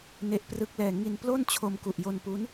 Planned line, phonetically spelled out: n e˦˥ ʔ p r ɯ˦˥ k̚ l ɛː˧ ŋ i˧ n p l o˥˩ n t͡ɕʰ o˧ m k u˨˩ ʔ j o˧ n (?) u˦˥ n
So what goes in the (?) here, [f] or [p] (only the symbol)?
p